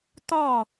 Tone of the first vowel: falling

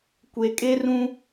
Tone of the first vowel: low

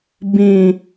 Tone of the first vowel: low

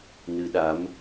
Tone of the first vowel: rising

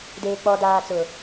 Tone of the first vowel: low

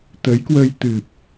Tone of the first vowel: rising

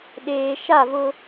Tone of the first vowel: low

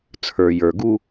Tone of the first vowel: low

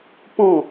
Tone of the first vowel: falling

